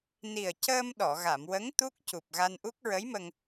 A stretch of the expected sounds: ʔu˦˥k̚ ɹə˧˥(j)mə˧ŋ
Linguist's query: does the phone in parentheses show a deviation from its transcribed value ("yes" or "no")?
no